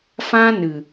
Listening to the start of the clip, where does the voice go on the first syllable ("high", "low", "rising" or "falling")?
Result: high